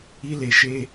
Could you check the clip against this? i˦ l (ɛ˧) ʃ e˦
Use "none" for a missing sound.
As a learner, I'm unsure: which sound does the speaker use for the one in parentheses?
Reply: e˧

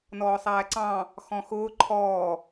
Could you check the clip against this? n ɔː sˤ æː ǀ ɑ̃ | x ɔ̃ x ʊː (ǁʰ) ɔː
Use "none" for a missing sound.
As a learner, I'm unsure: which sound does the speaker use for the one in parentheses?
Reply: ǃʰ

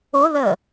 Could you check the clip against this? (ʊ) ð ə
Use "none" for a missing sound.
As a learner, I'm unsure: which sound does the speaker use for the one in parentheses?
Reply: ʊ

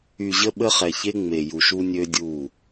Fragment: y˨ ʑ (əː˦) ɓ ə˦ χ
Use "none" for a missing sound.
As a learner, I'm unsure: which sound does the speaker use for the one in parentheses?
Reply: ə˦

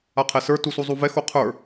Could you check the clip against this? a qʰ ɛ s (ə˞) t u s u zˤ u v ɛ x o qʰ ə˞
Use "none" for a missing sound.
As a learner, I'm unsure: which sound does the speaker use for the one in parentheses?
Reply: ə˞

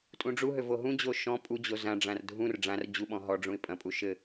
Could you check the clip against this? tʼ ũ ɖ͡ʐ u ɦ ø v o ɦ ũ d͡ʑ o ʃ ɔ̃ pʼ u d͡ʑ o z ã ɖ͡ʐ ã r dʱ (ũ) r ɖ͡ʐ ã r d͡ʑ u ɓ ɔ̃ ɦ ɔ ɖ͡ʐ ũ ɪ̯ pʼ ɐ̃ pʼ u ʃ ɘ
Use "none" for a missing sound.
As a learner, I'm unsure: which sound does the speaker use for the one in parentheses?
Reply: ũ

